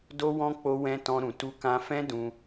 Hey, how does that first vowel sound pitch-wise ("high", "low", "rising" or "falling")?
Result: high